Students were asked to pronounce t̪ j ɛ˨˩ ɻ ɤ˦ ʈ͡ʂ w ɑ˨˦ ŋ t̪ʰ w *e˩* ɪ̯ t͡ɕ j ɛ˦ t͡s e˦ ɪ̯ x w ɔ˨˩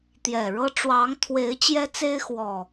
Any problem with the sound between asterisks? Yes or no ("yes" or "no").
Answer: yes